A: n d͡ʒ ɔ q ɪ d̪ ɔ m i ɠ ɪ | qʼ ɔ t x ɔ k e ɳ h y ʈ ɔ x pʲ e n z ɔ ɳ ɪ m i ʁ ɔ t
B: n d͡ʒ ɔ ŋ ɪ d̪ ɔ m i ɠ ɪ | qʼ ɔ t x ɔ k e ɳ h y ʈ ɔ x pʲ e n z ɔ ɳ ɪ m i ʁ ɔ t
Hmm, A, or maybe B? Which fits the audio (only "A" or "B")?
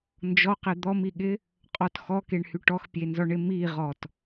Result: A